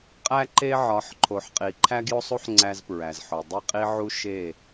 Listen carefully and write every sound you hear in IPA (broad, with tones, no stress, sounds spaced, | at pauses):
qʼ æ˦ ǃ e˦ ʕ ɒ˨˦ ħ ǃʰ o˨ ħ qʼ i˨ ǃʰ æ˦ ɡ j o˦ sˤ u˦ ħ ŋ͡ǀ æ˦ z p ɹ æ˨ z ħ o˨ dˤ i˦˨ qʼ i˦ ʕ u˦ ʃ e˦˨